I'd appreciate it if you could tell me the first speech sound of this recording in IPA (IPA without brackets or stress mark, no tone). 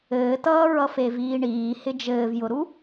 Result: ɘː